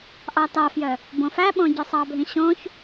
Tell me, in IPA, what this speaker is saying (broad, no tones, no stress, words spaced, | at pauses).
ʔɑtɑfjœ | bõfæɓõ ɟœsˤɑbʱĩ ɕõç